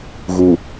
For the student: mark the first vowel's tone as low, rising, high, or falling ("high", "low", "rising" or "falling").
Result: low